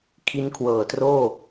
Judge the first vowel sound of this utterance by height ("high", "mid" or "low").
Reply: high